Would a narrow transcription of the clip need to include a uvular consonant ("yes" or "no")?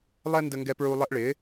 no